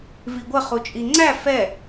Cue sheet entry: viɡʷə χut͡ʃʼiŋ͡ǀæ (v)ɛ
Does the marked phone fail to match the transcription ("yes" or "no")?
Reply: yes